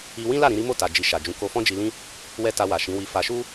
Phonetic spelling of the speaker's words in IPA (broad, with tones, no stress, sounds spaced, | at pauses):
i˧ w ĩ˦ l a˦˨ ɾ ĩ˧ ɾ i˦ m o˦˨ t a˨ d͡ʒ i˨ ʃ a˨ d͡ʒ ũ˨˦ k o˧ f ɔ̃˦ d͡ʒ i˧ l ĩ˦ | w ɛ˦ t a˧ w a˨ ʃ ĩ˨˦ w i˧ f a˧ ʃ u˦